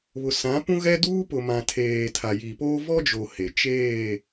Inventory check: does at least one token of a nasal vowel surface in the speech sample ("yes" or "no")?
yes